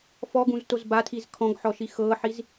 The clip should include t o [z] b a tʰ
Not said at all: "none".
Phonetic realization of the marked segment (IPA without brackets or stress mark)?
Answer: z